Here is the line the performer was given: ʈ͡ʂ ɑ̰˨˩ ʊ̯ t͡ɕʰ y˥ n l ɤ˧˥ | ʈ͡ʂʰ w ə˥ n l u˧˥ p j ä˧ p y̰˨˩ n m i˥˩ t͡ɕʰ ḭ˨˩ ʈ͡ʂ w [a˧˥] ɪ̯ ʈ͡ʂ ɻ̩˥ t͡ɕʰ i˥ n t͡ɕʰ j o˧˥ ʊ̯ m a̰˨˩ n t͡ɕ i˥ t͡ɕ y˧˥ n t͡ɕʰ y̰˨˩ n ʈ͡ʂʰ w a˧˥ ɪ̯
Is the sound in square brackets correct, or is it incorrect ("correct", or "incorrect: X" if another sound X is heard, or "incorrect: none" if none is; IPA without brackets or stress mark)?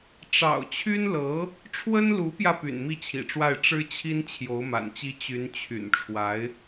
incorrect: a˥˩